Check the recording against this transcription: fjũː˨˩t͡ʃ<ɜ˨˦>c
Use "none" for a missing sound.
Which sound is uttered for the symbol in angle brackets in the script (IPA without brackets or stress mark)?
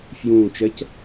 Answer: ɜ˨˦